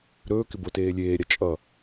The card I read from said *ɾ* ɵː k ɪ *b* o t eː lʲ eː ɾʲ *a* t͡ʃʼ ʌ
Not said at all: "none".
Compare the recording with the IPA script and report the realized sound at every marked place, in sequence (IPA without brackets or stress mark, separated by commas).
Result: ɾ, b, a